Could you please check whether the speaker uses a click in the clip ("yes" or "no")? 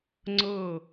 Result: yes